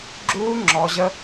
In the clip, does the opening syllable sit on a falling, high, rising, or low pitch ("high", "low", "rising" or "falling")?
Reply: high